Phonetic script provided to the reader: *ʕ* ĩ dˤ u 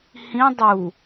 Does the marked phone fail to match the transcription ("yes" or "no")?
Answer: yes